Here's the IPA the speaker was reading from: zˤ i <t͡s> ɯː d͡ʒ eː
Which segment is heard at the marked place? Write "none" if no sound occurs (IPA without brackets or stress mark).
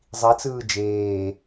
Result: t͡s